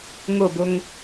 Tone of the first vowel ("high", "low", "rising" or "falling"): falling